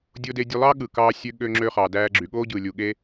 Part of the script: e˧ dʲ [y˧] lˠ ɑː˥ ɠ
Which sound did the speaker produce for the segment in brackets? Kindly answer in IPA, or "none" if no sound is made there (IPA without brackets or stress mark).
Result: ø˧